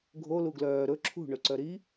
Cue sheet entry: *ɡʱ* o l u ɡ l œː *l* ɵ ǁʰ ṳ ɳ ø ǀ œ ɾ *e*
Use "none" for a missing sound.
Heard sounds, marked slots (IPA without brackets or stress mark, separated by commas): ɡʱ, ɾ, i